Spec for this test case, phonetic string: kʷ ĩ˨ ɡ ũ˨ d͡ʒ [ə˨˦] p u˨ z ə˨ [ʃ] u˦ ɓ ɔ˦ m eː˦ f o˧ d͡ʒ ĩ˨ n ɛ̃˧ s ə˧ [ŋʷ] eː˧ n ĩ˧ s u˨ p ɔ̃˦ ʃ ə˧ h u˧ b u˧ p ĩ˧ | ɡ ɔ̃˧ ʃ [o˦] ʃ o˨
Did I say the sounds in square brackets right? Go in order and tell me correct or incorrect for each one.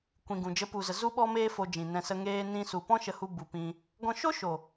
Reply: correct, incorrect, incorrect, correct

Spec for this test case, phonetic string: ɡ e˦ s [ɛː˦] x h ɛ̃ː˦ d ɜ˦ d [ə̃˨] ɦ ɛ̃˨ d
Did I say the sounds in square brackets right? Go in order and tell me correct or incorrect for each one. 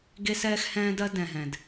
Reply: correct, incorrect

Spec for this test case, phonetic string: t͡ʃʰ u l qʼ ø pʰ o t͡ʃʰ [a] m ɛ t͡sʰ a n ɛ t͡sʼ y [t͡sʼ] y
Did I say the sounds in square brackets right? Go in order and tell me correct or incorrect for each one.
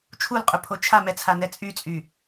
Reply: correct, correct

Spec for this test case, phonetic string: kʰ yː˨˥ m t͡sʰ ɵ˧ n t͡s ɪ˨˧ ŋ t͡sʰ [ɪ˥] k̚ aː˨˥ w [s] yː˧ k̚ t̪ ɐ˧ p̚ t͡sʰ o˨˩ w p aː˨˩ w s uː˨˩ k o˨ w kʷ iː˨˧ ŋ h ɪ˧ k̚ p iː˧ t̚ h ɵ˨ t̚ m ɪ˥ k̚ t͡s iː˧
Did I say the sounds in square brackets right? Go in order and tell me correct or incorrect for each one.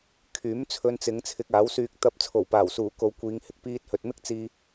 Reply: incorrect, correct

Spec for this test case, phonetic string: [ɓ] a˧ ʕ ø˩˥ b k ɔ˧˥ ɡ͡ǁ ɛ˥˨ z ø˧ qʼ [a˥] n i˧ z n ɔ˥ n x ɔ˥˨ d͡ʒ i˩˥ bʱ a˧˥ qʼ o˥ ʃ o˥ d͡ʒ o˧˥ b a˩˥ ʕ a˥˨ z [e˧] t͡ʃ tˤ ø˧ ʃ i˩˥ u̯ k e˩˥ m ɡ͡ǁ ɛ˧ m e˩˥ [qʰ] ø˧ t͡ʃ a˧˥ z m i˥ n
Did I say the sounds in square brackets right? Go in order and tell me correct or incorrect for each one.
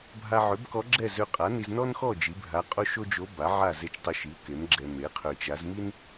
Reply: incorrect, incorrect, correct, correct

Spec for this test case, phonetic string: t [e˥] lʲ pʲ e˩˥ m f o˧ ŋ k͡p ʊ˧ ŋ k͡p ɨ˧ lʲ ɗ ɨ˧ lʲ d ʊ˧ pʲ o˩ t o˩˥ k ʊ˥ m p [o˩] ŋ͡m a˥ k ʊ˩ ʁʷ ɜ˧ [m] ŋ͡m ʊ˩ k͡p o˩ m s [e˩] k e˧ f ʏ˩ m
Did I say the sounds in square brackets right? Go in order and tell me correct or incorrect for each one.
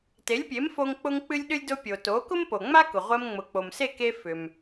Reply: incorrect, correct, correct, incorrect

